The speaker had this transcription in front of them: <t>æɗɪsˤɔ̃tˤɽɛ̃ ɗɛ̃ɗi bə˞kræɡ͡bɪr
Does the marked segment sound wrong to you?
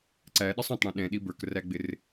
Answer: yes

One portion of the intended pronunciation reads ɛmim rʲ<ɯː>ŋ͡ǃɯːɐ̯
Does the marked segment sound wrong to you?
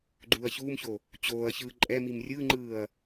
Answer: yes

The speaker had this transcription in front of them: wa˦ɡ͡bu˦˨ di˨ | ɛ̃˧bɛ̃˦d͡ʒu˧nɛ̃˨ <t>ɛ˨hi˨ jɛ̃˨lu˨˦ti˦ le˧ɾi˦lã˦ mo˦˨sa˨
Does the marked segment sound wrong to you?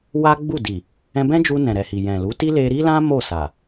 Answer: yes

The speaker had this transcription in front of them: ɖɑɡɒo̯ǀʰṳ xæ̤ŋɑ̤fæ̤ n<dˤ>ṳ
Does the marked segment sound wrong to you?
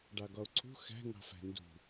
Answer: yes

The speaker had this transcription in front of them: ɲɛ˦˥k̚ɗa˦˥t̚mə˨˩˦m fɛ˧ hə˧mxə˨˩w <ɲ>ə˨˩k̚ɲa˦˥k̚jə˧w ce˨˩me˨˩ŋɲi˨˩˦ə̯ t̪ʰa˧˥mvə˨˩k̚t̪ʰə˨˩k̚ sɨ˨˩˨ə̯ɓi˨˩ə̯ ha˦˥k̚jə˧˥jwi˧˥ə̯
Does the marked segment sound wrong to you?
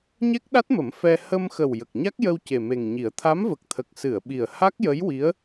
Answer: yes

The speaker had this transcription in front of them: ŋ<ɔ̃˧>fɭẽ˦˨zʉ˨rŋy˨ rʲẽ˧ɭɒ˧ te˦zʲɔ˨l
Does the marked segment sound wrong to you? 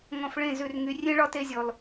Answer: yes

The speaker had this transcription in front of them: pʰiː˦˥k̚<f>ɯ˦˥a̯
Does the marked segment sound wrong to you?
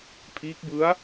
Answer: yes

